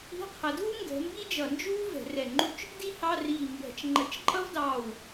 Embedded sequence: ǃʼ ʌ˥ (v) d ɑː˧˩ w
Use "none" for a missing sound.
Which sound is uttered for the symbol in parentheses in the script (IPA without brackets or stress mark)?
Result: v